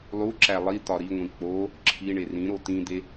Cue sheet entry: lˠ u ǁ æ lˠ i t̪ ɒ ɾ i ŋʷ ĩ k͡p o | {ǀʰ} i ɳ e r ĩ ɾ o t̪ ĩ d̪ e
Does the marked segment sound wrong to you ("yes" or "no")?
yes